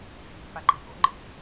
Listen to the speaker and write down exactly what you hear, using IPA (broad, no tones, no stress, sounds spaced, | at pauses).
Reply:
s i̤ pː a ǃ e̤ ʔ o̰ ŋ͡ǃ ḭ